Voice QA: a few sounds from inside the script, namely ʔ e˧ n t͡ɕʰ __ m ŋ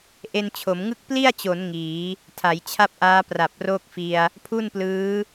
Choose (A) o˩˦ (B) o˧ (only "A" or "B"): A